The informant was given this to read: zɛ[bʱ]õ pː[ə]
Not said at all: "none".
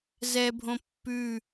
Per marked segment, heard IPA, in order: bʱ, ʉ

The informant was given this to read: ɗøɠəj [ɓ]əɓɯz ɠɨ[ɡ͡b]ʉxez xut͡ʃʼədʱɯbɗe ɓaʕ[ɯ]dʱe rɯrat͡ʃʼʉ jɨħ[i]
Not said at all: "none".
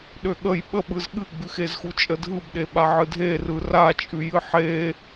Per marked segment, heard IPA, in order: ɓ, ɡ͡b, ɯ, e

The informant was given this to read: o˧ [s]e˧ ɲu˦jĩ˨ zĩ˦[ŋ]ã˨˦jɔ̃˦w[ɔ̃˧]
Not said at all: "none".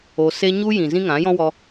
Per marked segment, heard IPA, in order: s, ŋ, ɔ˧

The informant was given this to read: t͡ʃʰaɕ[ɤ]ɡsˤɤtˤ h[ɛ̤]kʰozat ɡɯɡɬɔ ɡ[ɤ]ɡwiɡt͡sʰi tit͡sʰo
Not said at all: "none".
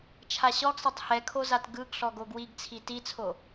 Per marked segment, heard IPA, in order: ɔ, ɛ, o

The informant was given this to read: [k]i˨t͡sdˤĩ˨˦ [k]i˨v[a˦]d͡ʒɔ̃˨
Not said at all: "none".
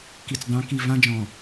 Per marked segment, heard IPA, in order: k, k, ã˦

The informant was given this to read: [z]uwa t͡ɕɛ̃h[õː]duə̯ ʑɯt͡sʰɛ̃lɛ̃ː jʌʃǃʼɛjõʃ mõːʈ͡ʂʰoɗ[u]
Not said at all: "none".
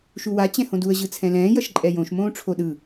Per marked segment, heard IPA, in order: ʃ, õ, ɯ

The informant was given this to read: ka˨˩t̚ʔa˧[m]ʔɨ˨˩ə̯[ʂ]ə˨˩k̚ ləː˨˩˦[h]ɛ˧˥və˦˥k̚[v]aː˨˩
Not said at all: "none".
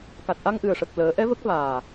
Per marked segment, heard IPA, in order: ŋ, ʂ, ʔ, v

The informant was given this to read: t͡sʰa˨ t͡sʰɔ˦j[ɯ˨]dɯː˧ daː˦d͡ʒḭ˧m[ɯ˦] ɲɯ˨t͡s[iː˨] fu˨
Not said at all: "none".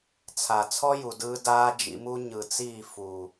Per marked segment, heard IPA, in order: u˨, u˦, iː˦˨

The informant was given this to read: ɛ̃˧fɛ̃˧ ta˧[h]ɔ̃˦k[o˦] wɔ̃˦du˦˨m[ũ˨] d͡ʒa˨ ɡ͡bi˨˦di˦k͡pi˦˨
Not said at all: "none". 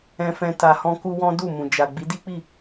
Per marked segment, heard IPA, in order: h, u˦, ũ˨

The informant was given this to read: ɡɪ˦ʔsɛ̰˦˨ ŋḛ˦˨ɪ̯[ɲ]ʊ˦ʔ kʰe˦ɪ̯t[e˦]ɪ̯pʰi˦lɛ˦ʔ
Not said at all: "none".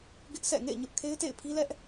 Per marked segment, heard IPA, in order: ɲ, ḛ˦˨

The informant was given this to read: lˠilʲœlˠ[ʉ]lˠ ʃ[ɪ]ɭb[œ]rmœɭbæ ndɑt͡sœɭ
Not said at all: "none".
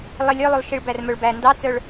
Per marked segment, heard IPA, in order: ʉ, i, æ

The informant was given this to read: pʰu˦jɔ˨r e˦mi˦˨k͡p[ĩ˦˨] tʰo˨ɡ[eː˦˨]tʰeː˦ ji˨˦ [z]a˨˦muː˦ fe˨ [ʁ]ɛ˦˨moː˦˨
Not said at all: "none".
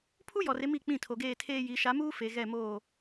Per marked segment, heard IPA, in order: ĩ˦˨, eː˦˨, ʃ, ɣ

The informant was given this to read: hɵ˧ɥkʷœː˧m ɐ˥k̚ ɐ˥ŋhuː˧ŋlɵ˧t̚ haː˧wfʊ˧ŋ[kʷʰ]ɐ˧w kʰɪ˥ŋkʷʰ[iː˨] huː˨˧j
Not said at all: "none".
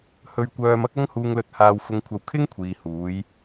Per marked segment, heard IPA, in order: kʷʰ, iː˨

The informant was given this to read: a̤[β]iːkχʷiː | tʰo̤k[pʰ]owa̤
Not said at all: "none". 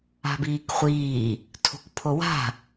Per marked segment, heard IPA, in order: b, pʰ

